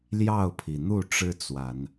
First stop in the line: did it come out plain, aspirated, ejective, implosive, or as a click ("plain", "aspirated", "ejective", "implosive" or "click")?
aspirated